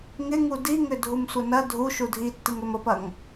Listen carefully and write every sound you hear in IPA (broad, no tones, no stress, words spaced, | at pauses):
ŋɪŋu diŋʏ dʱumsʷɐnɐ dʱuʃu dʱitːiŋ ɾʏməpɐŋ